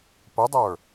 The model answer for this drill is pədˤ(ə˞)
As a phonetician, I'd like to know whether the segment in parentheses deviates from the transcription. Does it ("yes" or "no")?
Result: no